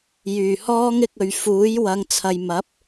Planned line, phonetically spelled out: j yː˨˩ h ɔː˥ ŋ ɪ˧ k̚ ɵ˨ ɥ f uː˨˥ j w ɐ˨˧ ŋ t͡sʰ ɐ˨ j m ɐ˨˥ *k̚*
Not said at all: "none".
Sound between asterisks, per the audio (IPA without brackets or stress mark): p̚